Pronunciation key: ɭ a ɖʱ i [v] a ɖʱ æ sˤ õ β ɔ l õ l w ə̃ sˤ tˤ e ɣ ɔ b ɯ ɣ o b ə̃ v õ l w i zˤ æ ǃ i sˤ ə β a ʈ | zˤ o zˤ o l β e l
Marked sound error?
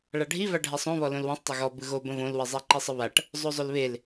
no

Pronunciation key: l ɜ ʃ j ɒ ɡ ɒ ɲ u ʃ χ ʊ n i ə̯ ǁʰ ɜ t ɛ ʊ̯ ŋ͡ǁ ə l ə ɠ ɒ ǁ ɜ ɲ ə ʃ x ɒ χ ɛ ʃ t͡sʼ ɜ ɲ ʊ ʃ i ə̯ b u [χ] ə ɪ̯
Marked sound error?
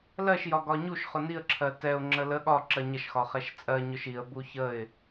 yes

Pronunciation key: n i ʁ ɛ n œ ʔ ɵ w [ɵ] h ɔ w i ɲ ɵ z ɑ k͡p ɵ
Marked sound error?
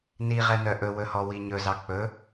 no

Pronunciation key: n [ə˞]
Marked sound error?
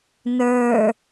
no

